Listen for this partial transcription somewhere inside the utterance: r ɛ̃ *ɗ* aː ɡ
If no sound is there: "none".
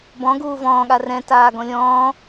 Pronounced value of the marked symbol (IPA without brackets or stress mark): t